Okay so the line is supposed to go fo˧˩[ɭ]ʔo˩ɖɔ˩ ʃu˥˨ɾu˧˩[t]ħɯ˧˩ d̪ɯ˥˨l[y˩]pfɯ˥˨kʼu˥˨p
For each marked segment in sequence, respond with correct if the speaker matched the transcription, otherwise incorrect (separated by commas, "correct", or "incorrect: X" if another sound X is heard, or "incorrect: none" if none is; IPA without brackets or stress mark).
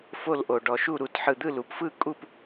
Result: incorrect: l, correct, incorrect: u˩